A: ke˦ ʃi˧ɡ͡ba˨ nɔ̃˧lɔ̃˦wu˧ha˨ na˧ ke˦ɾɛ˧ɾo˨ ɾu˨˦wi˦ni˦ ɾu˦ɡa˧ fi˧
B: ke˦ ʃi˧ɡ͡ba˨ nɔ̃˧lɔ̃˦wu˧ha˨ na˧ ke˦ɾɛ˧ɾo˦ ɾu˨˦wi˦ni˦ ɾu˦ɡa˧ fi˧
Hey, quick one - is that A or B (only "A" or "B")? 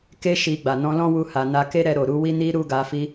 A